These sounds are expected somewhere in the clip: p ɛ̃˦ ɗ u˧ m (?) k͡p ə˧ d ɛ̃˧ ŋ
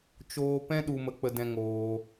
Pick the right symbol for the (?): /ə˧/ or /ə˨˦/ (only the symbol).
ə˧